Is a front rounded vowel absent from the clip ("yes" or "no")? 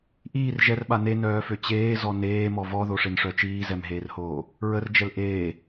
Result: no